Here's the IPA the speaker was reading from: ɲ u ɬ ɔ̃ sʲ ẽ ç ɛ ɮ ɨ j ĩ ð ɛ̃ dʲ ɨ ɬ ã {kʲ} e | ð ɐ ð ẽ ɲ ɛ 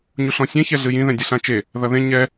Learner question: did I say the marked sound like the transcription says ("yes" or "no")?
no